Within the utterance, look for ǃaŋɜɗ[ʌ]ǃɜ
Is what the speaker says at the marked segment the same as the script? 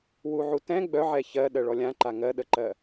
no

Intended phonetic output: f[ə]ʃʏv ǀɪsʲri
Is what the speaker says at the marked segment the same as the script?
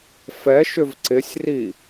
no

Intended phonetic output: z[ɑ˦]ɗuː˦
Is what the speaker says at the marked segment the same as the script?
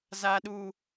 no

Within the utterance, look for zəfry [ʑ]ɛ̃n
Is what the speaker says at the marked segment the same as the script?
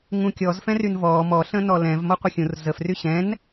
no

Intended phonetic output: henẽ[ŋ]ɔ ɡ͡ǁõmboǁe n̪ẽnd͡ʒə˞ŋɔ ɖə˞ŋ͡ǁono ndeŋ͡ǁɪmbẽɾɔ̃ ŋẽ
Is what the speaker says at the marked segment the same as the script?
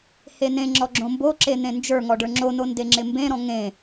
no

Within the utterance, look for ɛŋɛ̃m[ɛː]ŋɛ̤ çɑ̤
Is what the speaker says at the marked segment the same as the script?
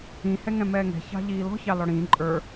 yes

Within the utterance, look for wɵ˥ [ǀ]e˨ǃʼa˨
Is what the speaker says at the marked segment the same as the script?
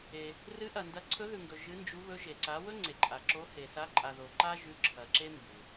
no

